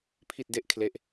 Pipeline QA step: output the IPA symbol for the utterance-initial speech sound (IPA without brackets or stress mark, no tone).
pʰ